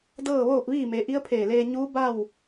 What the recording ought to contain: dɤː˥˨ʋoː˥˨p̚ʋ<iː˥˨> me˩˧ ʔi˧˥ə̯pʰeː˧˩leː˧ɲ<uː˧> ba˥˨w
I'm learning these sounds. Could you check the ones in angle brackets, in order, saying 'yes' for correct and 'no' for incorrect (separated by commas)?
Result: yes, no